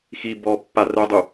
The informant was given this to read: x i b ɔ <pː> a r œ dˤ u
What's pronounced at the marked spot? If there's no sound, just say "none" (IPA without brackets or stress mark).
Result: pː